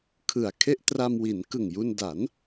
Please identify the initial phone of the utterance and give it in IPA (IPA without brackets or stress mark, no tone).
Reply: kʰ